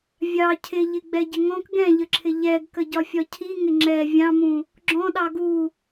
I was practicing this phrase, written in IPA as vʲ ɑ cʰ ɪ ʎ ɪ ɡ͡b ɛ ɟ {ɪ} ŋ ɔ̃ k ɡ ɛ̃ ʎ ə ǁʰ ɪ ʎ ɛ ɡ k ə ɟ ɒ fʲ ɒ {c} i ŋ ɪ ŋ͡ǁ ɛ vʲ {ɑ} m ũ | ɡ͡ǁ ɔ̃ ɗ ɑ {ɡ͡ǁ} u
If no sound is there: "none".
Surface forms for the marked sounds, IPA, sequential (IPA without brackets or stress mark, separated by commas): ɪ, cʰ, ɑ̃, ɡ